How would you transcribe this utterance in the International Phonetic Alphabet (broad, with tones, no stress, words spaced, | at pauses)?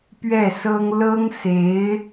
pɥɛ˥˩sɤ˥ŋ lɤ˥ŋ se˧˥ɪ̯